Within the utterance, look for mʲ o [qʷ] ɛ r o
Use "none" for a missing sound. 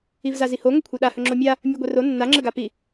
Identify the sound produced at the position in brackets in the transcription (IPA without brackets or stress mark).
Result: ɡʷ